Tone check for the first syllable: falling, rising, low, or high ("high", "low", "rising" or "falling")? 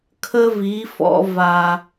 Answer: high